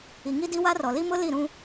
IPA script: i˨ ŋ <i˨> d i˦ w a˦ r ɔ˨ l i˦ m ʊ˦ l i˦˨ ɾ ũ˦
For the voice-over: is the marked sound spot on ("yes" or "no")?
no